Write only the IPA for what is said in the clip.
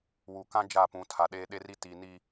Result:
w u˨ k ã˦ d͡ʒ a˦˨ p ũ˨˦ tʰ a˨ ɗ eː˦ ɗ e˦ r i˦ t i˨ n i˨

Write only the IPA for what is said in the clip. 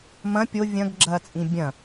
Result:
m ɐ̃ pʲ o vʲ ɐ̃ ɡ ɡ͡ǁ ɐː t͡sʼ ĩ bʲ ɐ̃

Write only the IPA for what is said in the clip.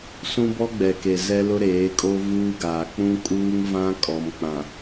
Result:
s ũ˦ b ɔ˦ ɡ͡b ɛ˨ k e˨ z ɛ˦ l ʊ˦ ɾ eː˨˦ kʼ o˦ v uː˦ ɡ aː˨ k͡p ũ˦ kʼ uː˦ ŋ v ã˦ kʼ ɔ˨ m k͡p ã˨

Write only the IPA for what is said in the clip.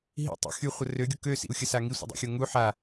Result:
ɦ ḭ tˤ ḭ x y χʷ ə r ø ɡʲ o k ø s ḭ u̯ xʲ ə s a ŋ i sʷ ə̰ dˤ ḭ xʲ o ŋ u ħ a

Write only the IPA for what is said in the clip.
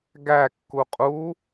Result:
ɡ æ kː u qʼ u

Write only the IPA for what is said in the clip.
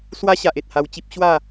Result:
s w a˦ ɕ a˨ ʔ e˨ t̚ h a˧ w t͡ɕ i˦ p̚ ɕ w a˥˧

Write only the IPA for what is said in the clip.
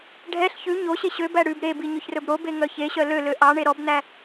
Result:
ɖʱ ɛ ɬ ç ʉ ɲ o ɕ e ɕ ø b æ ɽ ʉ b ɾ e b i ɲ ɵ ç r ɵ b ɾ o b e ŋ œ ç e ɕ œ l ø l ø ʔ ɑ ɳ e ɾ ɔ b n̪ æ

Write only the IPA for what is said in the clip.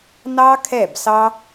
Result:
n ɑ˦ kʰ ɛ˦˨ b s ɑ˦

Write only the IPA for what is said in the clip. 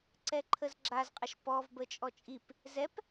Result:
ǀ ɛ ǃʰ ə z ɡ͡ǁ a z qʼ ə ʃ p ɔ v b ə t͡ʃʼ ɔ t͡ʃʼ i p | z ɛ p

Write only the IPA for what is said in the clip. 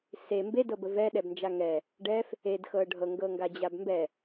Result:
s e m b e d ɤ b ə v ɛ ɗ ɛ b n d͡ʒ a ŋ ɛ | ɖ ɛ f | e d x ɤ ɖʱ ɤ ŋ ɡ ɤ ŋ ɡ a d͡ʑ a b m b ɛ

